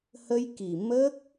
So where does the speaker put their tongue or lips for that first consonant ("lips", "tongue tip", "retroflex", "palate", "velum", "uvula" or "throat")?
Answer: throat